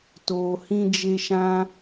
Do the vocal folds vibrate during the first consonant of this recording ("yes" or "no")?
no